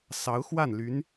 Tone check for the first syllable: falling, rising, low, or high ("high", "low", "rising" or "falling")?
rising